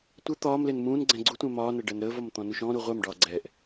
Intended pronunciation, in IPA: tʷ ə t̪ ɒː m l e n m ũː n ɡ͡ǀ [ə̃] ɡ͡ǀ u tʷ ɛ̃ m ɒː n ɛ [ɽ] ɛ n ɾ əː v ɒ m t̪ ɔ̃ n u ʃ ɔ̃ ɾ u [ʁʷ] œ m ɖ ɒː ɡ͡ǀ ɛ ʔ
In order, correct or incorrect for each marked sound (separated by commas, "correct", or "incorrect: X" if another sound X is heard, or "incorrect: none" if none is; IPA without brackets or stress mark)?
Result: incorrect: ɛ̃, incorrect: ɖ, correct